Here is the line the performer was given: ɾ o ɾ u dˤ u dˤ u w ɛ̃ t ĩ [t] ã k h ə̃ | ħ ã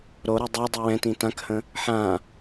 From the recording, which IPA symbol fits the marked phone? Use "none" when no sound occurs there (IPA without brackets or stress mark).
t